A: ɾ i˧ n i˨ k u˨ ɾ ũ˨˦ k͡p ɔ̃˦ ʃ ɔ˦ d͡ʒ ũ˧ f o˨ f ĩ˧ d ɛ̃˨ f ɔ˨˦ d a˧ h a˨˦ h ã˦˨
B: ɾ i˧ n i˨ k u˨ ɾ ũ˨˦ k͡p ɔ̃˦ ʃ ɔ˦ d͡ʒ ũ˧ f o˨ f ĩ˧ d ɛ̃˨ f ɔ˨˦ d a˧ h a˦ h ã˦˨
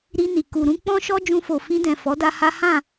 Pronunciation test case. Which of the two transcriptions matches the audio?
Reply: B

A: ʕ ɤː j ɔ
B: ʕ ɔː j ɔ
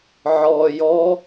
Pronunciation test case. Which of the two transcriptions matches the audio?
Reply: B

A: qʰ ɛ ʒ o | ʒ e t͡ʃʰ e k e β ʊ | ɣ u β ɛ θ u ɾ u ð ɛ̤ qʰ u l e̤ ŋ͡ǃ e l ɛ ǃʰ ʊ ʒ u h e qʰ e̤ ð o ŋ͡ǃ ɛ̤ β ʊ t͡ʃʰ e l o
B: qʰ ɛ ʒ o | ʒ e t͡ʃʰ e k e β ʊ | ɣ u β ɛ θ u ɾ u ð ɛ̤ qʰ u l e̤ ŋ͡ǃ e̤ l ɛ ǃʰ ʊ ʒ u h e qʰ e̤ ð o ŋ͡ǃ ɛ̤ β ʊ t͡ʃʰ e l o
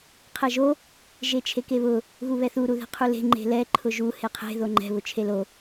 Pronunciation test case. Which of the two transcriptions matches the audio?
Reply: B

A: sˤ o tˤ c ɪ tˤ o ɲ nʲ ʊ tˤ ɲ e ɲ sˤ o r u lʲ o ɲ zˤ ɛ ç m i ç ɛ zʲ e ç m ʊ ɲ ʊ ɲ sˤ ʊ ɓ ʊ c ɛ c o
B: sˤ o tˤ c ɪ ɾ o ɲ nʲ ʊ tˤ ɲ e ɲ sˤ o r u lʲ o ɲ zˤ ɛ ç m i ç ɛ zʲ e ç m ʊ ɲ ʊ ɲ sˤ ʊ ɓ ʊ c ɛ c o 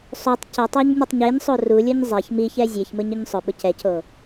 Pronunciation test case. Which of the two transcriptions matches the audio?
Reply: A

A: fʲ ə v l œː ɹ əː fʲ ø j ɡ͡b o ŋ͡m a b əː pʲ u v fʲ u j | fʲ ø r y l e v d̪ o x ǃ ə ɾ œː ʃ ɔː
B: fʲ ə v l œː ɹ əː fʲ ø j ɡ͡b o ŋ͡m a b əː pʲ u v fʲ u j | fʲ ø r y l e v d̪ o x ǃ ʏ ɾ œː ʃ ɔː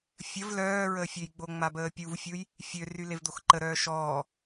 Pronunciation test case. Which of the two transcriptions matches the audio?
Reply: A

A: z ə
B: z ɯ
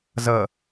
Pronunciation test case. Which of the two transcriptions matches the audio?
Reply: A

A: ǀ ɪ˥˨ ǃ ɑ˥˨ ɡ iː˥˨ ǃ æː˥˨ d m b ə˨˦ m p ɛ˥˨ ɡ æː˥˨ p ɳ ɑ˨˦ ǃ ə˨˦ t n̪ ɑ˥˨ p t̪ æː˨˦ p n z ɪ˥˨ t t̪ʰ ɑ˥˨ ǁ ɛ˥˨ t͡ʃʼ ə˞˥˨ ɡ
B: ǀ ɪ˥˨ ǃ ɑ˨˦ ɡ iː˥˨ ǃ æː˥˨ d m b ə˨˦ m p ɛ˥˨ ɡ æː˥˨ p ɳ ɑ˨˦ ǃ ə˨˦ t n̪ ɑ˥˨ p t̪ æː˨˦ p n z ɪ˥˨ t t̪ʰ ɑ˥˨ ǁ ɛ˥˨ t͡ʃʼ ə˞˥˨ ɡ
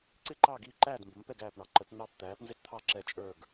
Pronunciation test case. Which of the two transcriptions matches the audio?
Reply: A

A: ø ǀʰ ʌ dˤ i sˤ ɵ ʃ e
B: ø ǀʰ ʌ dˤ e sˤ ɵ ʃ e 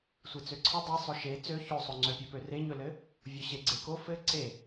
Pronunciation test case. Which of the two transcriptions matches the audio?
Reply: B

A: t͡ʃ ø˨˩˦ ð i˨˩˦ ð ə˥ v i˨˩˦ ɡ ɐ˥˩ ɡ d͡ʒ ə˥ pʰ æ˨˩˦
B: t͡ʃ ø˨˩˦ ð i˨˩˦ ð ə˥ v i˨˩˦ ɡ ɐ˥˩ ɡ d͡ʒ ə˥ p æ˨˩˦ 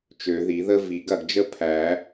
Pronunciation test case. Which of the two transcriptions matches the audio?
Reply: A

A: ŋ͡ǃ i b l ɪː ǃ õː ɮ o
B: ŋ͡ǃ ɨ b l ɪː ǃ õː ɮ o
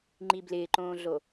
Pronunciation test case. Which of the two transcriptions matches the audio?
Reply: A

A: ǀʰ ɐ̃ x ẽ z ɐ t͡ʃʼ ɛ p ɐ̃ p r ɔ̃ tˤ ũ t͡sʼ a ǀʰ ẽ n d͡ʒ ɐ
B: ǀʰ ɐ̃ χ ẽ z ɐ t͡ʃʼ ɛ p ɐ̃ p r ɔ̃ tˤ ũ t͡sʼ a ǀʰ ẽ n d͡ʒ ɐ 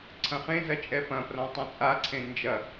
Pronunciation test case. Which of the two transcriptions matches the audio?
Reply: B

